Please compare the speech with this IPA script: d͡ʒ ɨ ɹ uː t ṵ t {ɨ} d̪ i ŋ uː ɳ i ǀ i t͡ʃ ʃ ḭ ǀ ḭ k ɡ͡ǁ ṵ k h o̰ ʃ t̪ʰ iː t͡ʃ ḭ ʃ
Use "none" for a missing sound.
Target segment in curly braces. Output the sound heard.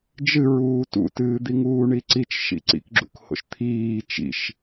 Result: ɨː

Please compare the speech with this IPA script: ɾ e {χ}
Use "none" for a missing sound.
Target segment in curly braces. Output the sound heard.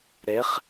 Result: χ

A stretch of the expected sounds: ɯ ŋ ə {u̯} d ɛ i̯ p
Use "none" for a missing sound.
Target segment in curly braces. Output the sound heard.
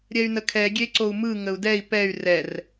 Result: u̯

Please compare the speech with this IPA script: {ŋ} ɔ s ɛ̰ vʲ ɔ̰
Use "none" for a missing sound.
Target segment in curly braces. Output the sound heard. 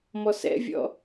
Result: m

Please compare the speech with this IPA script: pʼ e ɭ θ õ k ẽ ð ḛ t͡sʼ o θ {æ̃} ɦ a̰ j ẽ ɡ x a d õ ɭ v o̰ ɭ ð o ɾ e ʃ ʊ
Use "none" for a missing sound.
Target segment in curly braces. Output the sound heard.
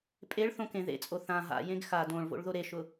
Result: ã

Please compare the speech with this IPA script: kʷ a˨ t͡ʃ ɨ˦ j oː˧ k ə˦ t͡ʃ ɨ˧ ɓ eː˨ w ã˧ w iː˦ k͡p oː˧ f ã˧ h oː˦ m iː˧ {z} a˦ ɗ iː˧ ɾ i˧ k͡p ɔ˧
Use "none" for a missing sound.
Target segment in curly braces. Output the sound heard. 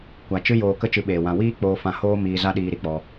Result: z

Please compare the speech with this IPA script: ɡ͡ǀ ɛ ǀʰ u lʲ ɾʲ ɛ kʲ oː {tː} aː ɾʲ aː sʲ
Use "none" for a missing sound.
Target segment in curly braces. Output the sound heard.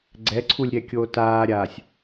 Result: t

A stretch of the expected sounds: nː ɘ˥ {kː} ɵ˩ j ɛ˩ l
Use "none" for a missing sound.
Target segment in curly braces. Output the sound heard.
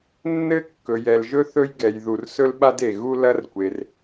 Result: kː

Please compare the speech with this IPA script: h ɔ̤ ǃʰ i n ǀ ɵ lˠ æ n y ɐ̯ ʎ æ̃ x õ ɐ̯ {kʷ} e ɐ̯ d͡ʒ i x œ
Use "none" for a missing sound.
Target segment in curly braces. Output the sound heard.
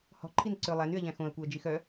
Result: kʷ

